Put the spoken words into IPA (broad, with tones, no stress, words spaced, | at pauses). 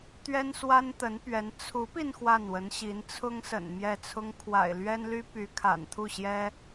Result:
t̪ɥɛ˥nswa˥nt̪ə˧˥n pɥɛ˧˥n t͡sʰu˧˥pi˧n xwa˥˩nwə˧˥nɕi˧˥n t͡sʰʊ˥ŋsə̰˨˩n mjɛ˥˩t͡sʰʊ˥ŋ kʰwa̰˨˩ɪ̯lɥɛ˥nly˥py˧˥ kʰa̰˨˩nt̪ʰu˥˩ɕjɛ˥